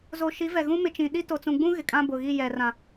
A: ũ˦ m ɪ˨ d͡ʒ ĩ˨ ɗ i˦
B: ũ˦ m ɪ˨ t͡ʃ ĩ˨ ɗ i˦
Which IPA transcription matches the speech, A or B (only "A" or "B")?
B